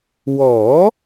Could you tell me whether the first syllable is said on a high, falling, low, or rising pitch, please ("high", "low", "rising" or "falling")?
rising